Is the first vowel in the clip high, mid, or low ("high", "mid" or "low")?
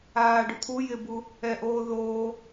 low